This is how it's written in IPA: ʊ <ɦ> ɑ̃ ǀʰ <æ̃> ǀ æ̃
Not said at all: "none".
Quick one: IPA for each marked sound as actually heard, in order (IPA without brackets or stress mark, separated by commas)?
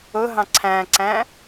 ɦ, æ̃